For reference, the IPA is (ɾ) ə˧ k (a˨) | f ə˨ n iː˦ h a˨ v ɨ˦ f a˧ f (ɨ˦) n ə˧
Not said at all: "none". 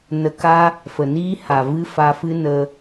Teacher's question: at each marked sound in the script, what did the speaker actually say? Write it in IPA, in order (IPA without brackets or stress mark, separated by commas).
n, a˦, ɨ˦